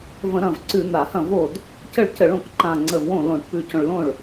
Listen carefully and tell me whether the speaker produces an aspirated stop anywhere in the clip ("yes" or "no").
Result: no